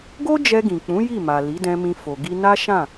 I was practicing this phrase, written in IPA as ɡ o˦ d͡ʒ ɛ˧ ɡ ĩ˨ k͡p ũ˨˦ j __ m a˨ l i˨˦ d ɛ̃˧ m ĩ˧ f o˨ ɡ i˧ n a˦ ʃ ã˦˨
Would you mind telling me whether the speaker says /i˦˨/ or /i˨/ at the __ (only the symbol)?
i˦˨